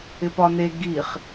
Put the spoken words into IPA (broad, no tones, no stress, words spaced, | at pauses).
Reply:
ɪpɒne ɡiχ